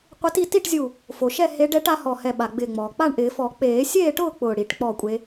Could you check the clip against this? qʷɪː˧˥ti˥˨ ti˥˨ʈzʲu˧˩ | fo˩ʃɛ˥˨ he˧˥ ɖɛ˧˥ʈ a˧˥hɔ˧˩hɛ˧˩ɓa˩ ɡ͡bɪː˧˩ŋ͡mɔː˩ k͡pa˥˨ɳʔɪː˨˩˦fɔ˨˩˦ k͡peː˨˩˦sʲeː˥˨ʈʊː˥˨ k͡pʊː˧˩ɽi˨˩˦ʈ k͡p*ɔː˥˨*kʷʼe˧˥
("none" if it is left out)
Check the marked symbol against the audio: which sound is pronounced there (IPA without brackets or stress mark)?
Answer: ɔː˥˨